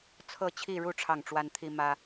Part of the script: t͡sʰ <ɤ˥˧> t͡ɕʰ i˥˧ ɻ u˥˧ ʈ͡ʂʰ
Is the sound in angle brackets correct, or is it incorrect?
correct